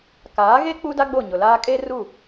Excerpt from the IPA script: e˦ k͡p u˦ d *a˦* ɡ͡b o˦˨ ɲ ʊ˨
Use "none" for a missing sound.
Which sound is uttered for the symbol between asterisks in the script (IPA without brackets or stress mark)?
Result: a˦